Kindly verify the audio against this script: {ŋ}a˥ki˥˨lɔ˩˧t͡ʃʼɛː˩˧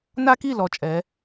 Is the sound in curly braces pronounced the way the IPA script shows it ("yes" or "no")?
no